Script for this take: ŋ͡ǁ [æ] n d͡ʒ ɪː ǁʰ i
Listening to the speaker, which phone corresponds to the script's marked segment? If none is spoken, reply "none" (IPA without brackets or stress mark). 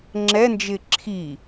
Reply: ɛ